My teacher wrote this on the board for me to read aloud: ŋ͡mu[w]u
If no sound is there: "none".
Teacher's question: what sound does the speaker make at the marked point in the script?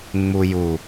j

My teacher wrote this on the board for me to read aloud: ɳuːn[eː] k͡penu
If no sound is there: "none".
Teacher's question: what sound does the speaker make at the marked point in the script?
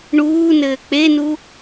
ɘː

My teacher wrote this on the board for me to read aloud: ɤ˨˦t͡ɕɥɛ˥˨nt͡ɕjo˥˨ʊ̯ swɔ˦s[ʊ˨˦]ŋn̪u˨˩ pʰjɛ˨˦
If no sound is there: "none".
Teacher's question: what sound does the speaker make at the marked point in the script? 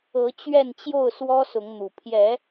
ʊ˨˦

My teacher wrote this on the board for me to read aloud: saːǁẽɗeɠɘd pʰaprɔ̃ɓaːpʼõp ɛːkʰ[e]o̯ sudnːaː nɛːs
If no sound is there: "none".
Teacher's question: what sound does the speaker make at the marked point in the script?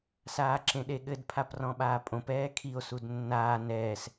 i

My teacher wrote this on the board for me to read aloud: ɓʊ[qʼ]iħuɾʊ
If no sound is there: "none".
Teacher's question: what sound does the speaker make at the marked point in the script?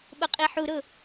qʼ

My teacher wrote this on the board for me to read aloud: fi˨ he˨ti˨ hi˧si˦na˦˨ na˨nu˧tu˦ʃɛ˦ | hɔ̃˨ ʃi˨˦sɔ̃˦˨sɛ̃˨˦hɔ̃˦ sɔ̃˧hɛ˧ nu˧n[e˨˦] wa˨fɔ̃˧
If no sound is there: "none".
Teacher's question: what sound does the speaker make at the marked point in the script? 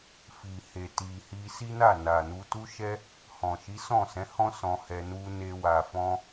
e˧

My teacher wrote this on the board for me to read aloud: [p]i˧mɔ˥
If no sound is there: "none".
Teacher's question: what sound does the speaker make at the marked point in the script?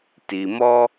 t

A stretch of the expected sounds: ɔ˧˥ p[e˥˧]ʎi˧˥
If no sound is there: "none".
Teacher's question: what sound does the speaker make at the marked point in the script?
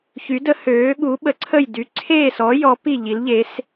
i˥˧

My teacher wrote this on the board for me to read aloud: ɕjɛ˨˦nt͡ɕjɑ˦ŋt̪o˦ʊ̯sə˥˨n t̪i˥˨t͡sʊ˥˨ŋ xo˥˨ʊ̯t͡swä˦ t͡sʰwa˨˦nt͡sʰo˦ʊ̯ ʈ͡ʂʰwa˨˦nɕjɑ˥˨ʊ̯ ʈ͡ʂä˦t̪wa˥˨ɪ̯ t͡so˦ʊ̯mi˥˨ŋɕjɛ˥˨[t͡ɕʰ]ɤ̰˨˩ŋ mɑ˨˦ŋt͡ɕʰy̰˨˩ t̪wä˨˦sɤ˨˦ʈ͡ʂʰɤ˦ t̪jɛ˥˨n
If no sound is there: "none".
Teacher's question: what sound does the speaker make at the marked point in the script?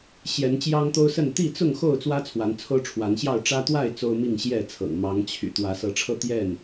t͡sʰ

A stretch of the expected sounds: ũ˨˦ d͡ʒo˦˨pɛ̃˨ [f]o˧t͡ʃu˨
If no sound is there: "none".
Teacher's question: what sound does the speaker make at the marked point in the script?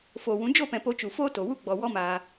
p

